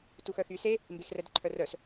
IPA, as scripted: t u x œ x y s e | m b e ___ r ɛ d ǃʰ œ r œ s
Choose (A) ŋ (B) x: B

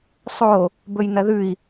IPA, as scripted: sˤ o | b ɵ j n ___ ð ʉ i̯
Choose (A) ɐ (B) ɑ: A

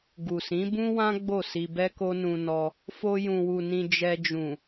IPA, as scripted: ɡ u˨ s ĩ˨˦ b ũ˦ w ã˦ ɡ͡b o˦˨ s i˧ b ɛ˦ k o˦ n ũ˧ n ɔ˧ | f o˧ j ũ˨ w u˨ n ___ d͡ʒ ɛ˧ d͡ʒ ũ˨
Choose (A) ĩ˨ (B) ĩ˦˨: A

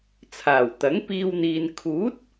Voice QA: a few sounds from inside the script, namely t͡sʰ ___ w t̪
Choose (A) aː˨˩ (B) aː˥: A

